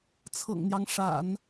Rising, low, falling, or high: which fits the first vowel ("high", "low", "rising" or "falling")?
low